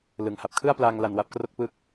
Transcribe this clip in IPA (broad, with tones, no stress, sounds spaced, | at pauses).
l ɯ˩˦ ŋ h a˨˩ p̚ kʰ ɯ˥˩ a̯ p l aː˧ ŋ l a˧ n w a˦˥ p̚ k r o˥˩ k̚ p ɯ˥˩ k̚